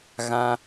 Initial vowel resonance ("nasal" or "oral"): nasal